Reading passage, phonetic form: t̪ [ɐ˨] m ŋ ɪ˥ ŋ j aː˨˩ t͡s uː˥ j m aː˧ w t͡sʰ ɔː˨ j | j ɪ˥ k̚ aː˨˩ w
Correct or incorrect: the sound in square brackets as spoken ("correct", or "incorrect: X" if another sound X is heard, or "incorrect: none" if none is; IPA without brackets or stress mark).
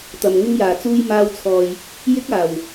correct